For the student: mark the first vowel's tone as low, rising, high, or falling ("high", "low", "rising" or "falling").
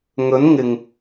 rising